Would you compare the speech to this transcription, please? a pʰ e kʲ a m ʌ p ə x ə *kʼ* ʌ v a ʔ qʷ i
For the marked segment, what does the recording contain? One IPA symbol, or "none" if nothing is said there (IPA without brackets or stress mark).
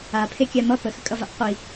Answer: kʼ